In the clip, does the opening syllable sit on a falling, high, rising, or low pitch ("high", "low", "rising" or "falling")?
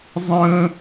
high